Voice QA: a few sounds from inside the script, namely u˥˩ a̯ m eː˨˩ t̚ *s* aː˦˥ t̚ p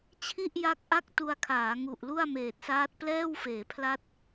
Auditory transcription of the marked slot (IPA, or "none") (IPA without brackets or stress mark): s